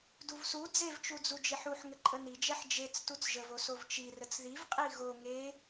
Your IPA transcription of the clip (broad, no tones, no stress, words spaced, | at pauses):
duvsu d͡zevt͡ʃud͡zu d͡ʒeħuħ ŋəǃʼənid͡ʒɛħ d͡ʒet͡s tut͡sʒəvosov t͡ʃirət͡s ðivqʼi ɣo ŋe